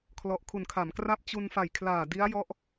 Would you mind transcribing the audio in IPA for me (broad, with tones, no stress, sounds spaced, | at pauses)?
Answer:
kʰ l ɔ˨˩ ʔ kʰ u˨˩ n kʰ a˩˦ m k r a˥˩ p̚ t͡ɕ u˧ n f a˨˩ j kʰ l aː˨˩ d i˦˥ a̯ j ɔ˦˥ ʔ